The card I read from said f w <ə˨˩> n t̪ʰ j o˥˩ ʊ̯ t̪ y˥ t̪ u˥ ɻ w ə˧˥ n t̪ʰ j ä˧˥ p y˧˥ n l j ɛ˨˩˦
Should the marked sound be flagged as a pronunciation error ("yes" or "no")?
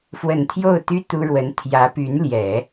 no